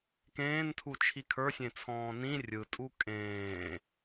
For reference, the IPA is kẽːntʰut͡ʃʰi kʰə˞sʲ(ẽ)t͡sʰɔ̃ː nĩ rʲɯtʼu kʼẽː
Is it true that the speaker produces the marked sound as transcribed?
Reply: yes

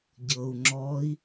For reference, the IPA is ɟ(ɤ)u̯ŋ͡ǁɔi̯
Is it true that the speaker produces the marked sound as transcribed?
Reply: yes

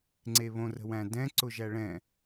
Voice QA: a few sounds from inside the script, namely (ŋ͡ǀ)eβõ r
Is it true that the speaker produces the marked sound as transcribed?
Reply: yes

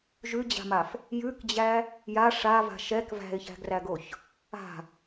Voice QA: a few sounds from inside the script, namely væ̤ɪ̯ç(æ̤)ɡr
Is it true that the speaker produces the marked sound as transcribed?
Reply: yes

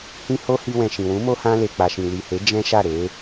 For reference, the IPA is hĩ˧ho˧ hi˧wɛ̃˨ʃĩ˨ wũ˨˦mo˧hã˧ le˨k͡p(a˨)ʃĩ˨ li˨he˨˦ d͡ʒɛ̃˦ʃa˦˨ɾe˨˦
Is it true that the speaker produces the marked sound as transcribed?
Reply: yes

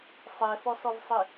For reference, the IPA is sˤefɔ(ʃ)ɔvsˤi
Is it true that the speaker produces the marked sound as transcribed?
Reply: no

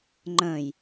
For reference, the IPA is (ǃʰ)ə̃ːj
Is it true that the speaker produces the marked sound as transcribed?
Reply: no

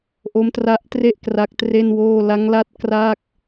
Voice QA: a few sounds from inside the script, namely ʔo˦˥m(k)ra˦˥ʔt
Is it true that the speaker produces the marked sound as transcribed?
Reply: no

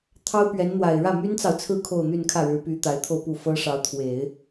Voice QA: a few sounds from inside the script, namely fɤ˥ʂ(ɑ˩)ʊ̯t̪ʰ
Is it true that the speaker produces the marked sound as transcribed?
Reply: no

